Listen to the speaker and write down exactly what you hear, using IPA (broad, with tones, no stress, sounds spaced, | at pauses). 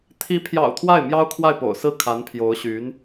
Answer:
t̪ʰ i˧˥ pʰ j ɑ̰˨˩ ʊ̯ t̪ʰ w a˥˩ ɪ̯ m j ɑ˥ ʊ̯ kʰ w a˥˩ ɪ̯ p o̰˨˩ ʊ̯ s ɹ̩˥˩ kʰ a˧˥ n pʰ j o˧˥ ʊ̯ ɕ y˧˥ n